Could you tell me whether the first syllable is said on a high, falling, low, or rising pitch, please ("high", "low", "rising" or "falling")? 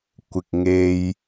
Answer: low